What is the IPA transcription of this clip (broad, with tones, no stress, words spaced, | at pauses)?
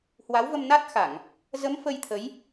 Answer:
hwa˨˦wvə˧mna˦˥t̚xa˧˩˨ŋ | zə˨˦m fə˧jt̪ʰə˨˦j